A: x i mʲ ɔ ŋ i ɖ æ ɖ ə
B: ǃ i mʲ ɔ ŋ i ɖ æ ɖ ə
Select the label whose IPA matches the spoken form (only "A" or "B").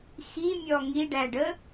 A